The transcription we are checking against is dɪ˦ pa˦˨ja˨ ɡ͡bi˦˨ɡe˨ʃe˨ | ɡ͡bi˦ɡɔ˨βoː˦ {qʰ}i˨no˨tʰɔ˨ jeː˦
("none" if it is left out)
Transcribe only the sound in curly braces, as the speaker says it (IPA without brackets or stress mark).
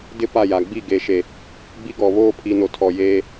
pʰ